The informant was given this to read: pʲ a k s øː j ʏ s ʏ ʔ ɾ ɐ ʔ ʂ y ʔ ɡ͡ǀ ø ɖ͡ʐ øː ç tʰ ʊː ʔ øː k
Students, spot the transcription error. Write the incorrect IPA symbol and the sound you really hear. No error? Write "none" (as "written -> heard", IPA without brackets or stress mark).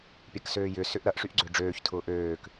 none